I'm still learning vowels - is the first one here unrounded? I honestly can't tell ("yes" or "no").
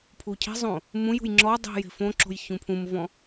no